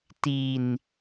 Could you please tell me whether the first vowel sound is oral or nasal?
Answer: oral